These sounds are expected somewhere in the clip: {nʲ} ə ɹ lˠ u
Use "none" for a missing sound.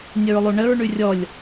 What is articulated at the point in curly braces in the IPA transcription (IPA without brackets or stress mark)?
nʲ